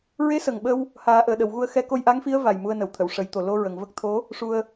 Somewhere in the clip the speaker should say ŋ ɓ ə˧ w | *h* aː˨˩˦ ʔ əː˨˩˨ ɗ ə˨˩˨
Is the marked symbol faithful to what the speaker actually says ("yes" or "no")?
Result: yes